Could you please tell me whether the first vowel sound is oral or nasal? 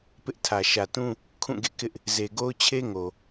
oral